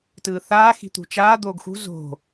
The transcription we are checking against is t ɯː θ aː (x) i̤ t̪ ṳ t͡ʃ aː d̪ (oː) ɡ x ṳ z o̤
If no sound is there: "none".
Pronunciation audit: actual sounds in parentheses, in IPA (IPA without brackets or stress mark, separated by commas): x, oː